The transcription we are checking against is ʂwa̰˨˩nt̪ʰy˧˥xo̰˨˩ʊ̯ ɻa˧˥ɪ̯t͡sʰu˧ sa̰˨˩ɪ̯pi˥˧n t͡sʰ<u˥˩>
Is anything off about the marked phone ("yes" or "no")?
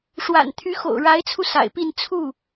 no